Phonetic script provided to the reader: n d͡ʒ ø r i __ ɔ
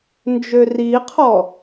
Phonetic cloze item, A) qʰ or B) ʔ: A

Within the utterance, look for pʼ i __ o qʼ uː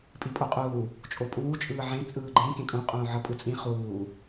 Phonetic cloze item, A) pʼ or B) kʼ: A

